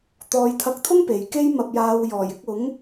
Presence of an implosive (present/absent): absent